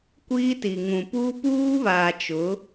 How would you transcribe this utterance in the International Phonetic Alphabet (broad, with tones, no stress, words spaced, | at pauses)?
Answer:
kʷiː˦ti˨ŋũ˨puː˦ puː˦βaː˨t͡ʃʊ˨˦